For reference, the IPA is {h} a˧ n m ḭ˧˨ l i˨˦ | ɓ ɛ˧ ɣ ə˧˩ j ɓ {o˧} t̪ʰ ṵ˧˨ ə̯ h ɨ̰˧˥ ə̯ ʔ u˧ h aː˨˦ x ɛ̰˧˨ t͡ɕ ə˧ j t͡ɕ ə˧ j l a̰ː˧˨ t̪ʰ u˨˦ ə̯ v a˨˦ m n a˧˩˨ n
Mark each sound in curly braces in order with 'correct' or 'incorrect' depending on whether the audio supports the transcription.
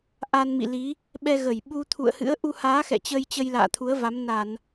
incorrect: ʔ, incorrect: u˧

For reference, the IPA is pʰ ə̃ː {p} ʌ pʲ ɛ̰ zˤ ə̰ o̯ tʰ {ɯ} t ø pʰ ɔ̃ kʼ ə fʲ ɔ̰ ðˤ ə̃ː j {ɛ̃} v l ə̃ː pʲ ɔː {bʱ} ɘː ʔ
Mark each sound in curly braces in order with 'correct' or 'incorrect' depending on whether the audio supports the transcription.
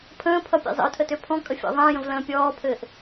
incorrect: pʰ, incorrect: ə, incorrect: ə̃, incorrect: pʰ

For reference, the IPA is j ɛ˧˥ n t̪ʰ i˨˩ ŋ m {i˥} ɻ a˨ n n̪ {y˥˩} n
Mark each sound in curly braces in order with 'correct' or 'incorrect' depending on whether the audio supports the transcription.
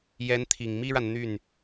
correct, correct

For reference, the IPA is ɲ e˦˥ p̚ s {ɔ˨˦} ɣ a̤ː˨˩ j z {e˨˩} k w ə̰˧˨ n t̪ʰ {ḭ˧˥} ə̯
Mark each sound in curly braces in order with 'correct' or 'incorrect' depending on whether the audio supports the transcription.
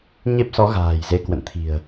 correct, incorrect: e˧, incorrect: i̤˨˩

